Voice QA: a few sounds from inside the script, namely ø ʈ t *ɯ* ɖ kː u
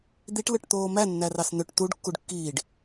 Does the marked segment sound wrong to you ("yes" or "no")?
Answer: yes